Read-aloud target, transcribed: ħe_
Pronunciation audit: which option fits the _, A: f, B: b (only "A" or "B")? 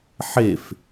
A